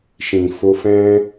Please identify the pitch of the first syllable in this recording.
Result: low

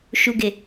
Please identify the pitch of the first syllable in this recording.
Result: low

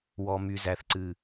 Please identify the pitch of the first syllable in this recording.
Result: low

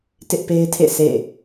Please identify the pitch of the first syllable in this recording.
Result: high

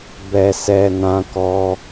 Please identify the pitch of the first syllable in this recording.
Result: low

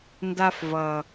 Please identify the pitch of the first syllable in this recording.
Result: high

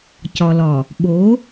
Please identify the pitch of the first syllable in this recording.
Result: low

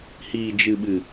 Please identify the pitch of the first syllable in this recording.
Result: low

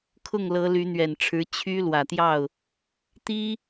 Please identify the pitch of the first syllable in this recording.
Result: falling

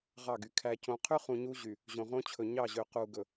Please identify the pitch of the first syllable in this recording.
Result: falling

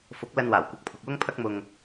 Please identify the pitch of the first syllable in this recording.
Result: rising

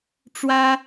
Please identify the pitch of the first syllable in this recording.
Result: high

